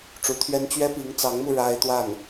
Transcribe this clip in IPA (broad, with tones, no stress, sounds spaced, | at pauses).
ʈ͡ʂ u˧˥ t̪ʰ ɥ ɛ˥ n t͡ɕ ɥ ɛ˥ p i˧˥ ŋ t͡s ɑ˧˥ ŋ m u˧ ɻ a˥ ɪ̯ t̪ w a˥˩ n